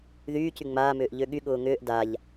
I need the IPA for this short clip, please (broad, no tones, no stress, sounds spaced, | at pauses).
ð yː c y ŋ͡m aː m ʏː ʔ ʎ ø ɠ y ɠ ʊː ŋ ʏː ʔ d a ʎ